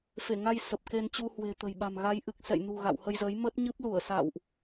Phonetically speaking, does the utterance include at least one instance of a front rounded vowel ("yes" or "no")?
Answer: no